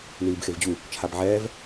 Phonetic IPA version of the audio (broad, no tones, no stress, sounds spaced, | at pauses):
n iː b x e v d͡ʑ u | t͡ʃʰ a b ʕ ɛː v